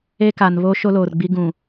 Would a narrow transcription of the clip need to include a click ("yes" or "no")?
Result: no